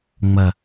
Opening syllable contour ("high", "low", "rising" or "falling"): low